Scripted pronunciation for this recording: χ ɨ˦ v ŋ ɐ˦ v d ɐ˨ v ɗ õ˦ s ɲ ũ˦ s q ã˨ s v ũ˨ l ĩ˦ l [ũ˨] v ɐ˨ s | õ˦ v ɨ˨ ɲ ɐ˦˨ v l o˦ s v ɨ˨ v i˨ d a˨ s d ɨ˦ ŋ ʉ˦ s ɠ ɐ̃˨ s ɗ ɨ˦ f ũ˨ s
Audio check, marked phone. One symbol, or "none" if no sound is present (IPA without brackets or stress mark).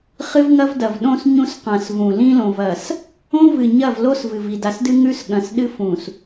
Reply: õ˨